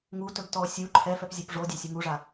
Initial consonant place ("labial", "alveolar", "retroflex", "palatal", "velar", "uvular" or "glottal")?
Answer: velar